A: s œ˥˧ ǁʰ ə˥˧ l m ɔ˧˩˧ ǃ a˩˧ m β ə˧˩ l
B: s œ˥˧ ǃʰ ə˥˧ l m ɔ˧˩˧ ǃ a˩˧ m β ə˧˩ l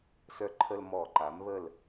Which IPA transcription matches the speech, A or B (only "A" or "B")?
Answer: B